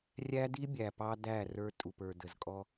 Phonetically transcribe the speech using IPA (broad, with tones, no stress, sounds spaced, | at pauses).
rʲ æ˦ d i˦ bʲ æ˨ p ɑ˦ d æ˦˨ r ə˞˦ tʼ u˨ p ə˞˨ d ə˨ z kʼ ɔ˦